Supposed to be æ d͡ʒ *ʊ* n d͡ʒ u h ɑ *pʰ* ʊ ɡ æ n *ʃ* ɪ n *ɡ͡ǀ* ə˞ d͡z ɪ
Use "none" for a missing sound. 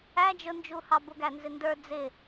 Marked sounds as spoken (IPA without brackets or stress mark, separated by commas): ʊ, b, z, d